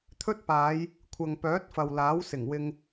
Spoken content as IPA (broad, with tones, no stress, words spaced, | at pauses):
t̪ʰɵ˥t̚paː˨˧j | kʷʰɐ˨ŋpœː˨˥t̚ fɐ˨wlaː˨˥w sɪ˨˩ŋwɪ˧ŋ